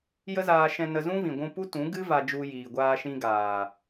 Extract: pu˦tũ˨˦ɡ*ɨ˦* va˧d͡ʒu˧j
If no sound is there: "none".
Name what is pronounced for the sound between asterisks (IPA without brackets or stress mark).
ɨ˦